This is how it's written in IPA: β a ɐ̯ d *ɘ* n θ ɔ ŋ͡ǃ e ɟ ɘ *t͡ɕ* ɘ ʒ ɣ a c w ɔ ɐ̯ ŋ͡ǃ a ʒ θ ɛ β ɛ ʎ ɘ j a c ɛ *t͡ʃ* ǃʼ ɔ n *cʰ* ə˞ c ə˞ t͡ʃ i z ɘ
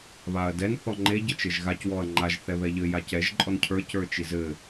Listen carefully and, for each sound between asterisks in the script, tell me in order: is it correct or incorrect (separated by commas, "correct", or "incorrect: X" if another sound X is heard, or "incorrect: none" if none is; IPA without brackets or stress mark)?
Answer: incorrect: ɛ, incorrect: t͡ʃ, incorrect: ʒ, correct